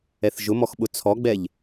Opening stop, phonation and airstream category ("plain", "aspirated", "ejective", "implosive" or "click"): implosive